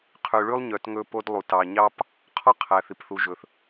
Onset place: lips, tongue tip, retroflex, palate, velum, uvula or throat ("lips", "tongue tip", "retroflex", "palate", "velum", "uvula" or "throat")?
uvula